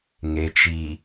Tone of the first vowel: low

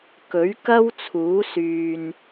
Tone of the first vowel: rising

